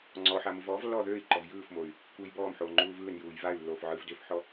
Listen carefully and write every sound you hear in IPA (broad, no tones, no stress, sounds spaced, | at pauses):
ŋ͡ǀ ɔ ħ a m ɯ v ɔː v lː ɔː ð øː i̯ ǃ ɔ v j ɯː f m o y̯ | kʷ ɯː j b ɔː m ħ oː ŋ͡ǃ uː v ɯː n j uː j v a y̯ lː oː f ʕ ɯː v d ø f ħ ɔ